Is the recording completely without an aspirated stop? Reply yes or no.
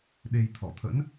no